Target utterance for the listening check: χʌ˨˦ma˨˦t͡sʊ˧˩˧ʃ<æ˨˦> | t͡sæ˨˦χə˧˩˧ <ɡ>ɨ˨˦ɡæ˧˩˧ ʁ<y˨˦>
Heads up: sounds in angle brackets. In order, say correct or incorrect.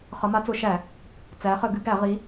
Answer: incorrect, correct, incorrect

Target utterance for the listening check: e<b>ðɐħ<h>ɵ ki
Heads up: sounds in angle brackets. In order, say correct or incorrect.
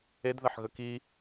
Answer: incorrect, incorrect

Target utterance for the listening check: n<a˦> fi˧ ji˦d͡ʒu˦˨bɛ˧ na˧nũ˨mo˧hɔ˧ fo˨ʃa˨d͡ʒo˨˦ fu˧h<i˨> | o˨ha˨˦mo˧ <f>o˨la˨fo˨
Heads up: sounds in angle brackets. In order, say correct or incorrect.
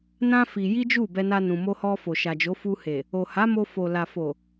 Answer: incorrect, incorrect, correct

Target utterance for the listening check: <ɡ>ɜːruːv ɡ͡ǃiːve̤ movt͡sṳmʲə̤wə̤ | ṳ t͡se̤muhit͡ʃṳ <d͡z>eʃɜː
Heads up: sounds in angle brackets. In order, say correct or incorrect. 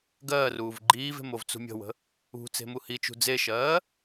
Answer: correct, correct

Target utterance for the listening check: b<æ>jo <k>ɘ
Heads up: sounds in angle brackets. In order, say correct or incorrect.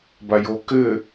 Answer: incorrect, correct

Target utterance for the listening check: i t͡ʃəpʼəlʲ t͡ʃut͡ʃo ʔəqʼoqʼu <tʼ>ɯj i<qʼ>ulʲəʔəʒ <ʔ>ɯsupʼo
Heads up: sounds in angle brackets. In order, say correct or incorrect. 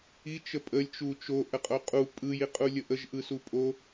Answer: incorrect, correct, correct

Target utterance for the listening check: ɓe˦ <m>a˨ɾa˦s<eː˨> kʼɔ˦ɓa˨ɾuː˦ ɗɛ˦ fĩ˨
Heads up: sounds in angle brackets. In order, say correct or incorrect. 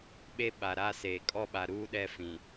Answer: incorrect, correct

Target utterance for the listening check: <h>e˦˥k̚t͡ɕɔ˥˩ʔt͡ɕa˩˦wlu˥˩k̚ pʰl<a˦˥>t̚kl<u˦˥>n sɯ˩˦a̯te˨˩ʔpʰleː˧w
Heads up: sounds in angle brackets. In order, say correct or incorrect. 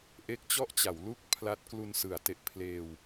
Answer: incorrect, correct, incorrect

